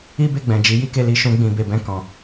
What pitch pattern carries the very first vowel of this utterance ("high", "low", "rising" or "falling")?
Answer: high